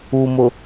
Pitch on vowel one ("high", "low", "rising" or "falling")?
low